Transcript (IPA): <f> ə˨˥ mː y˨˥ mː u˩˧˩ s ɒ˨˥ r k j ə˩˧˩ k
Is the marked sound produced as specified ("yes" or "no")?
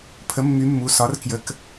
no